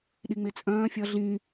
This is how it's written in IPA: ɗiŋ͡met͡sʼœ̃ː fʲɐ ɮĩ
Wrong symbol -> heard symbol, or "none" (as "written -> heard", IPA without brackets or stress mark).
none